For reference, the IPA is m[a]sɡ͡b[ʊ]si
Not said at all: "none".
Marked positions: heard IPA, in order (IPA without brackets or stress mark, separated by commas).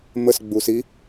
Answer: ə, u